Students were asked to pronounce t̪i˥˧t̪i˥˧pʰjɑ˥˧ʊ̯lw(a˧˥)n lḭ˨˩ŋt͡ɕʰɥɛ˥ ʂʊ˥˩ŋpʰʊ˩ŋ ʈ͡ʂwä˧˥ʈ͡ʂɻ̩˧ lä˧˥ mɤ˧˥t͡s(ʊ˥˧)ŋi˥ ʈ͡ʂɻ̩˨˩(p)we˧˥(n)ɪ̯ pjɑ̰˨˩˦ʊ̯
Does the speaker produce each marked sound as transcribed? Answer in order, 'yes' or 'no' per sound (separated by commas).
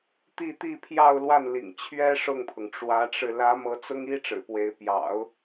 no, no, yes, no